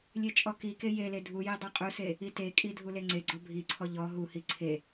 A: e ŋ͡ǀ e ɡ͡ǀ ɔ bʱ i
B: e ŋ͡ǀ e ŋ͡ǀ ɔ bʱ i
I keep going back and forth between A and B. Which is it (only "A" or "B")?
A